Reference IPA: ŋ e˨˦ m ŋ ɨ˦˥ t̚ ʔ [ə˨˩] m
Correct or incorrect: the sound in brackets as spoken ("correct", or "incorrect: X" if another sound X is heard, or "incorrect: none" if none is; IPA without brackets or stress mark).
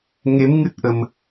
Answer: correct